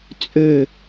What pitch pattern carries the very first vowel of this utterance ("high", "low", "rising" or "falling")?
falling